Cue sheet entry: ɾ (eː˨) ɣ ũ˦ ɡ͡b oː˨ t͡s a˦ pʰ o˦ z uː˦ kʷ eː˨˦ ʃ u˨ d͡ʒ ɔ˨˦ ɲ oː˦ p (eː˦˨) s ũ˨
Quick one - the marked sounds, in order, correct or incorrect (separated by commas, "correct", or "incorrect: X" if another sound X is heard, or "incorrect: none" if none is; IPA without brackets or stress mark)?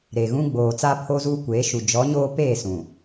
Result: incorrect: e˨, correct